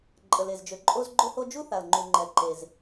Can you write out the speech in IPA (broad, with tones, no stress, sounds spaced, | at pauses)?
ǃʼ ə˩ l e˩ z d͡ʒ ø˩ ǃʼ o˥ z ɡ͡ǃ o˥ h o˥ d͡ʒ u˥ θ a˩ l ŋ͡ǃ y˩ ŋ͡ǃ ɛ˩ ǃ e˩ z